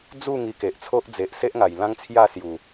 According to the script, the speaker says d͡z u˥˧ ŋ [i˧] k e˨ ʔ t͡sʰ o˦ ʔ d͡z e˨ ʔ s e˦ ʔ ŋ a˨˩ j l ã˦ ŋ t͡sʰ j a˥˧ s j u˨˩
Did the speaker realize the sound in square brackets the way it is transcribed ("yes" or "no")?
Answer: yes